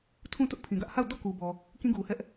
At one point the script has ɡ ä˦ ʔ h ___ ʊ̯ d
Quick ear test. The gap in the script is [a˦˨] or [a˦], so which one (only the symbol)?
a˦˨